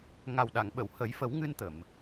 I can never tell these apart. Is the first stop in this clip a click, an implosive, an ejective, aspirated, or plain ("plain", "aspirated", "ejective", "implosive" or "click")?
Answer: implosive